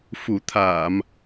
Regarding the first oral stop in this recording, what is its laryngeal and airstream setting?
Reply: aspirated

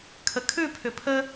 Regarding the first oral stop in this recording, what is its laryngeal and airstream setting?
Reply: aspirated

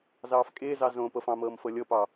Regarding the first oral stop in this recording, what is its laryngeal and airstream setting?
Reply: ejective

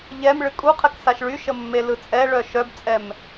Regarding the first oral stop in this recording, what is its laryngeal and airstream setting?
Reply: ejective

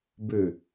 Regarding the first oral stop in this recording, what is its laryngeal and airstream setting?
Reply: plain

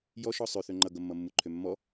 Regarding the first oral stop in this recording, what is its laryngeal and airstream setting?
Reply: click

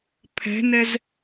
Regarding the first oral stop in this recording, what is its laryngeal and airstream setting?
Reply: aspirated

